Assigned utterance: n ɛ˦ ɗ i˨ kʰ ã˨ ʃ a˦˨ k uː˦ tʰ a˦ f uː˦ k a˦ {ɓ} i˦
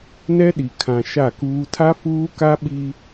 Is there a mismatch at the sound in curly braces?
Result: no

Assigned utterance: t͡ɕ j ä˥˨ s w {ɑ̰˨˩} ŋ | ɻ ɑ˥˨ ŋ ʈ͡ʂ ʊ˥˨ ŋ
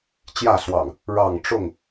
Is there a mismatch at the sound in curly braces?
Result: no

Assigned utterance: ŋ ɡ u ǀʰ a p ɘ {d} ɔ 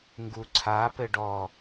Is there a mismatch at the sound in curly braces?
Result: yes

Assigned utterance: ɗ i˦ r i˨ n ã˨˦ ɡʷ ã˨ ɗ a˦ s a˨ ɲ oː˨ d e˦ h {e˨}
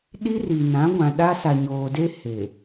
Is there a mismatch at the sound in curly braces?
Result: no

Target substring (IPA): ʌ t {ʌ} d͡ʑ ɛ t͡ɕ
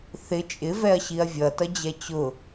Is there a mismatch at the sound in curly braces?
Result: no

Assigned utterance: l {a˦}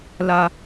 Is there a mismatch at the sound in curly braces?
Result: no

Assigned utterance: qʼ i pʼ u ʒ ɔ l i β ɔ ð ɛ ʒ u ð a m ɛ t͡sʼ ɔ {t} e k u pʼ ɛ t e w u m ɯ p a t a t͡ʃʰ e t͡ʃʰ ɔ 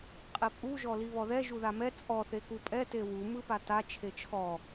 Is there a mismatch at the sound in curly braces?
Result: yes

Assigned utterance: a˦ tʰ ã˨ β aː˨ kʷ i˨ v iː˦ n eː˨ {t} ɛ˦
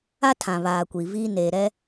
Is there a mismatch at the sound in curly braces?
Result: yes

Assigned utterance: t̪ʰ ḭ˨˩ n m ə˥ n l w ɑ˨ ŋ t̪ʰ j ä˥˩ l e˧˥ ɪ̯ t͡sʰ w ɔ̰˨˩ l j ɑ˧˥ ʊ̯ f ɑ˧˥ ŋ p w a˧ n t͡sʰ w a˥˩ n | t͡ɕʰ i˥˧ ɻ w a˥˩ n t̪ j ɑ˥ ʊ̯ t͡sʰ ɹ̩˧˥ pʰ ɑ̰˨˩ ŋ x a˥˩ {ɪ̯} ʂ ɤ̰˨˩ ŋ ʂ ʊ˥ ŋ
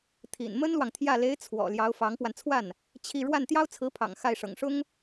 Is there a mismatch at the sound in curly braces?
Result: no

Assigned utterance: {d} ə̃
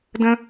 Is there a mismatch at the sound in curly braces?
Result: no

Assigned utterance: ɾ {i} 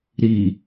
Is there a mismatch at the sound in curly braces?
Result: no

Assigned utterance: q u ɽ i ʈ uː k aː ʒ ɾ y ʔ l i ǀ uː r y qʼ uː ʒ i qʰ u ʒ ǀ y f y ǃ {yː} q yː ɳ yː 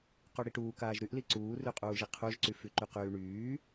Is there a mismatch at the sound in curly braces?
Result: yes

